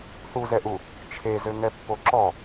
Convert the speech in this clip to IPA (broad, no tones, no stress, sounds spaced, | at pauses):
θ u z ɛ ʔ u | t͡ʃʰ e z ɘ ŋ ɛ pː o ǁ ɔ